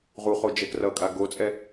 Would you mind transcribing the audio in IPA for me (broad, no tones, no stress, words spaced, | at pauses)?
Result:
ʁuχo d͡ʒɛkrʌkʼa ɡot͡sʼɛ